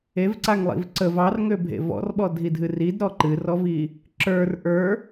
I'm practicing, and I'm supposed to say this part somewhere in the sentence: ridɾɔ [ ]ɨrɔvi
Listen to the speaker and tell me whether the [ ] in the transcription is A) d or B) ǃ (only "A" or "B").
B